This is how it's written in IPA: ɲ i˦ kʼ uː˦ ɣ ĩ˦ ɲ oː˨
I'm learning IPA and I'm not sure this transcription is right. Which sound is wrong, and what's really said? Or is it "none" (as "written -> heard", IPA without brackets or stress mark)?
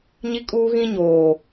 none